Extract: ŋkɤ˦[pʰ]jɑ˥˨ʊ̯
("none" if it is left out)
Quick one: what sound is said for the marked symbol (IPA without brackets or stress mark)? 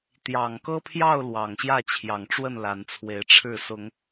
pʰ